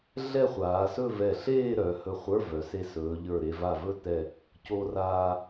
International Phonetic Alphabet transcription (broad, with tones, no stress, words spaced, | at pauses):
ɮɛ˥˧χʷaː˩˧sɵ˥˧ vɛ˧˩ɬeː˥˧ɾœ˩˧ hɵ˧˩χʷə˞˧˥˧vœ˩˧se˧ sɵː˩˧ʎə˞˧˩ɾe˧ va˧˩vɵ˥˧tɛ˧˩ | co˧raː˧